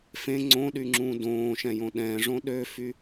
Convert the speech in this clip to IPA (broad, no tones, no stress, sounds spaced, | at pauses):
f ẽ ŋ͡ǀ õ ɗ y ŋ͡ǁ ũ d õː ʃ ɛ̃ j õ ɗ ɛ̃ ʐ õ ɗ ø f y